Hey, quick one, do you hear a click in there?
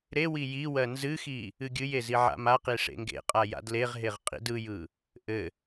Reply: no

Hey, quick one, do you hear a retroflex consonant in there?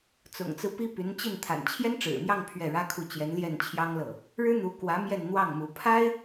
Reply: yes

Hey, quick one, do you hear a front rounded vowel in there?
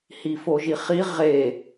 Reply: no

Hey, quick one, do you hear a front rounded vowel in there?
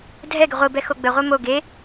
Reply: no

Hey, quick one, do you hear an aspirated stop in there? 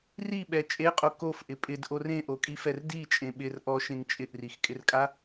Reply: no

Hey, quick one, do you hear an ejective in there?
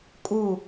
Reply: yes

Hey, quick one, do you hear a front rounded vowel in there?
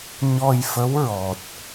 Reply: no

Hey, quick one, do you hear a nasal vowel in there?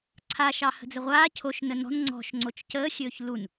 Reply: no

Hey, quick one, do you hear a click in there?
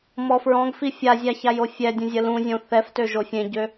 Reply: no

